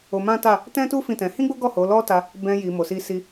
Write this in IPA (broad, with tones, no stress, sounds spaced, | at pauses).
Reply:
o˧ m ã˦ t a˦˨ | t ɛ̃˦ t u˦ f ĩ˦˨ t ɛ̃˧ h ĩ˦ ɡ͡b o˦ ɡ ɔ˦˨ h o˨˦ l ɔ˦ t a˧ | b ɛ̃˧ j i˨ m o˨ s i˧ s i˧